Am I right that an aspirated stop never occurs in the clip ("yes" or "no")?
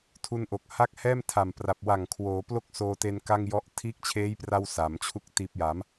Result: no